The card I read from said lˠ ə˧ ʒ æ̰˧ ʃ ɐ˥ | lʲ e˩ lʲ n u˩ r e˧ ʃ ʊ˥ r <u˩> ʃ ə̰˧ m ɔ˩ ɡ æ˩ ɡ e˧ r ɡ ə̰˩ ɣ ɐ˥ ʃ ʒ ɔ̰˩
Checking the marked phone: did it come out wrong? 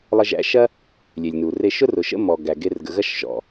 yes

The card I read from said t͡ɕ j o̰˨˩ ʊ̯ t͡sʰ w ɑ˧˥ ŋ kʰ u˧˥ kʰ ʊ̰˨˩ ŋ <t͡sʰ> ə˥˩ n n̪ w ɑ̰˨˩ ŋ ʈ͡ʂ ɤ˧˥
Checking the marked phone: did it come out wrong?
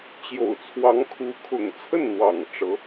no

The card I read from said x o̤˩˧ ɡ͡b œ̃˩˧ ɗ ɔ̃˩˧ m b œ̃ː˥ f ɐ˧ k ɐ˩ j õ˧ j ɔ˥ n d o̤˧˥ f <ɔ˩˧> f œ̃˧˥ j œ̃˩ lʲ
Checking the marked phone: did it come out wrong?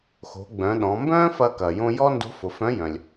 yes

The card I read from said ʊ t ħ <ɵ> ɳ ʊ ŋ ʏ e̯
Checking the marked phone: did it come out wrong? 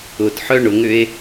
yes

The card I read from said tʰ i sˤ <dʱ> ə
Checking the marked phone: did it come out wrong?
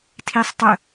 yes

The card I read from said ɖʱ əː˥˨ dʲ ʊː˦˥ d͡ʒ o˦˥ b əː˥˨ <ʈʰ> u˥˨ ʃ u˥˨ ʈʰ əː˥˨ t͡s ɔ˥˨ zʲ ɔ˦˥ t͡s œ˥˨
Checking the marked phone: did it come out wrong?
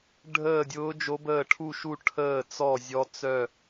no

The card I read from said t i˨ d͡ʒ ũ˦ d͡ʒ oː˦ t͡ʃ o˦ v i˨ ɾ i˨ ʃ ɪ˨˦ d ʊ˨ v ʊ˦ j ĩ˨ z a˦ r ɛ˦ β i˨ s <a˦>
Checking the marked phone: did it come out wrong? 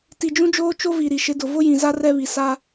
no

